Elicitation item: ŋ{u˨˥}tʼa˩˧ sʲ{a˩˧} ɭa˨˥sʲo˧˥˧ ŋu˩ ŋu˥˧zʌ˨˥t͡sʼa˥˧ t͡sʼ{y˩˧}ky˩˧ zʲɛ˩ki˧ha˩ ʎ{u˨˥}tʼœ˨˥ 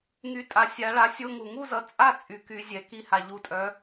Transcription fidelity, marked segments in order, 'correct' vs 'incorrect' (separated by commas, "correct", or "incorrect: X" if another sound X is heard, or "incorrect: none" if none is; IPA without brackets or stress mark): incorrect: y˨˥, correct, correct, incorrect: u˧